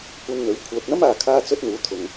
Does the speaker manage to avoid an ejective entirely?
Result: yes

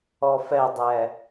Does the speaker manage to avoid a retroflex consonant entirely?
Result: yes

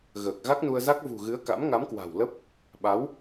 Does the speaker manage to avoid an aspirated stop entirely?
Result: yes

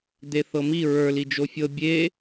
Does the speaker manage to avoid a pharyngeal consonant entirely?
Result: yes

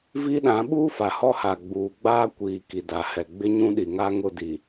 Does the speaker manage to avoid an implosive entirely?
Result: no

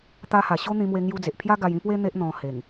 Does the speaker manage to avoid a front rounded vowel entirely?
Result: yes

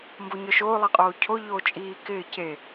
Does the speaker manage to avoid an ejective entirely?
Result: no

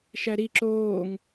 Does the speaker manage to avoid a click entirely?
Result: no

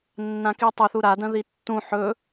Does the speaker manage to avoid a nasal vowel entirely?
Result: no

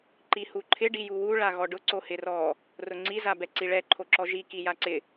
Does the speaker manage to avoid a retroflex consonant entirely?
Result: no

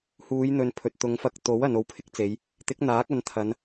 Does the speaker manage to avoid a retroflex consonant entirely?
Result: yes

